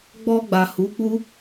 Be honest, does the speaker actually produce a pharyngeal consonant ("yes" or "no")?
no